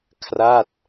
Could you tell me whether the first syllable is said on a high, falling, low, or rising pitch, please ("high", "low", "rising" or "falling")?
falling